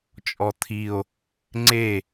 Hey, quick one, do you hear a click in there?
yes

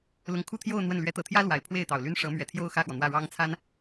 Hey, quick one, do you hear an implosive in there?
no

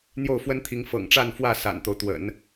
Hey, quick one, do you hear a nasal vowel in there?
no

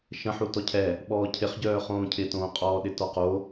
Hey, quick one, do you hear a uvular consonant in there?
yes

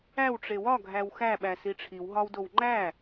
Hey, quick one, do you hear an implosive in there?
yes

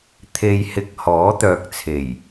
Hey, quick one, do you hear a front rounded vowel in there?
yes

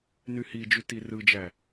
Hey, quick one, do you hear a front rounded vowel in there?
yes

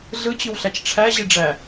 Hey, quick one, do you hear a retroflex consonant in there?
yes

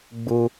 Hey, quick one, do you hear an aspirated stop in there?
no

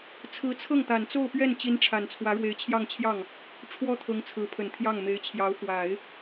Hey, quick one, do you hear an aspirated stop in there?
yes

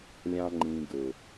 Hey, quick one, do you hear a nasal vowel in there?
yes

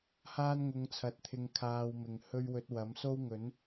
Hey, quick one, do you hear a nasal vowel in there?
no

